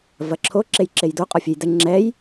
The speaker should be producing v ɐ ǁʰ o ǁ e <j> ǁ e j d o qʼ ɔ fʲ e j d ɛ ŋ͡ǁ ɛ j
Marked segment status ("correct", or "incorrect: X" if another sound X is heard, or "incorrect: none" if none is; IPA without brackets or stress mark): correct